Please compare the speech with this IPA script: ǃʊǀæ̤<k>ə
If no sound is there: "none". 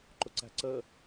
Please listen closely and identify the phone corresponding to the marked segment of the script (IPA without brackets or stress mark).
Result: ǀ